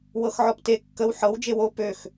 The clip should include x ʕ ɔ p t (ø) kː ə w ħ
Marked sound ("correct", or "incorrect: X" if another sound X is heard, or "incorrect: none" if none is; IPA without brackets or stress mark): incorrect: e